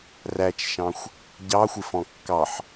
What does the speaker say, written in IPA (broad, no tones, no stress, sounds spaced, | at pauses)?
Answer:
r æ t͡ʃ ʃ ɑ̃ xʷ | ɟ ɑ xʷ ɪ f ɔ̃ kː ɑ ħ